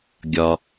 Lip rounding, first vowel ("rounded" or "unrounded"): rounded